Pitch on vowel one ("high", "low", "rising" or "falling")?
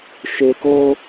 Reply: high